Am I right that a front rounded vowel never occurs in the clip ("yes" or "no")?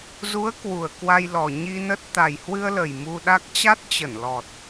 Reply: yes